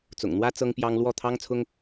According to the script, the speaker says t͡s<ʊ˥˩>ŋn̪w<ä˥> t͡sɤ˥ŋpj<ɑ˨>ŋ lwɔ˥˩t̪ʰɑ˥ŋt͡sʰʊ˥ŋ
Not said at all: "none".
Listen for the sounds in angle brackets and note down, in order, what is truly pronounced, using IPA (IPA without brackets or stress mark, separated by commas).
ʊ̰˨˩, ä˥, ɑ˥